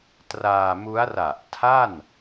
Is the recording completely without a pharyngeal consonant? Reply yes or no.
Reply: yes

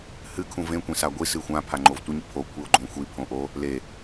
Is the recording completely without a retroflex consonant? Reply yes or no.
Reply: yes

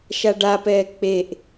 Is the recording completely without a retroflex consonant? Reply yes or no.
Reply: no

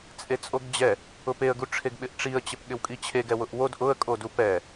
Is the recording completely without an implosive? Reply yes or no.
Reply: no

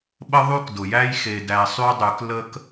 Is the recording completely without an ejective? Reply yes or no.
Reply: yes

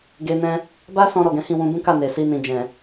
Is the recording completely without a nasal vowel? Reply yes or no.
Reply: no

